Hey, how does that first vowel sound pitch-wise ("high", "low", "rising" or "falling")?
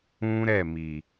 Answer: high